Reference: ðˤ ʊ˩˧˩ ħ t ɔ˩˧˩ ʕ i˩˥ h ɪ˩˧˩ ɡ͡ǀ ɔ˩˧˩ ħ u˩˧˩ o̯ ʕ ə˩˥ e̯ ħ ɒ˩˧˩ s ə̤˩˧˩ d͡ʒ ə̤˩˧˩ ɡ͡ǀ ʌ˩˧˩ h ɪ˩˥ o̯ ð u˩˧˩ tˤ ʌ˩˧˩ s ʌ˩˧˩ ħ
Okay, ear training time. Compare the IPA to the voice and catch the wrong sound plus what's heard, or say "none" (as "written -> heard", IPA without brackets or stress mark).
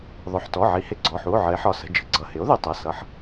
none